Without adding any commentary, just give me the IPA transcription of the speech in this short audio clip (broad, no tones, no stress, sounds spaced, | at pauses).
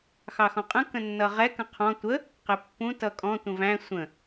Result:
x ɑ x ɔ̃ qʼ ə̃ k ə̃ nː ʌ ʁ ɛ k ə̃ qʰ ɔ̃ tʷ ə | q ɪ pː ũ t ʌ kʼ ɔ̃ tʷ ə̃ v æ̃ sʷ ə̃